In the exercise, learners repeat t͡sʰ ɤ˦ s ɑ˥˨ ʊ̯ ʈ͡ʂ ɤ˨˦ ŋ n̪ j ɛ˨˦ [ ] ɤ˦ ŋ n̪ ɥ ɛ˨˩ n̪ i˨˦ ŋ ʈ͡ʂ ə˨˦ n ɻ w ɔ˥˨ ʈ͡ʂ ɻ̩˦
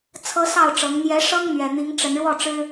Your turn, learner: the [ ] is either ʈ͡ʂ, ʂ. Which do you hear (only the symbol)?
ʂ